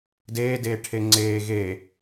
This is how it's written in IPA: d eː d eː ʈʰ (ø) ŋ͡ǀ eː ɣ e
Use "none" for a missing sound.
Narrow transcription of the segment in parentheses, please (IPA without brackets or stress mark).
e